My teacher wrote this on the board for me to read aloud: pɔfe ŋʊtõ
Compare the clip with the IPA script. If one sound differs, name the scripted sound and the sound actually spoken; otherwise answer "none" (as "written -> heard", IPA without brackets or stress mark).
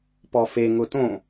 none